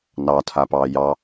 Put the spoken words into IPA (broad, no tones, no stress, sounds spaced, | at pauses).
n ɑ tʰ a p ɑː j ɑ